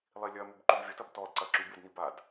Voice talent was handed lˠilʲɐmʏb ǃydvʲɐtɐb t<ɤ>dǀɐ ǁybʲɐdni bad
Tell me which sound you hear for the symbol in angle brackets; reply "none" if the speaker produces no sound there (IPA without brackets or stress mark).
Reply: ɔ